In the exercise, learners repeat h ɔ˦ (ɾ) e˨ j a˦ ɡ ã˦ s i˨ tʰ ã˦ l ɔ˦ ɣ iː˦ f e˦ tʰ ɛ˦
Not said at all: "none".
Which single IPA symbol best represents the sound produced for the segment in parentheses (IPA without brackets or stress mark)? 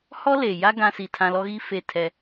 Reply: l